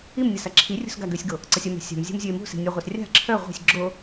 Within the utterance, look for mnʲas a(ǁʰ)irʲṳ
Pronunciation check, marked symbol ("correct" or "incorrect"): correct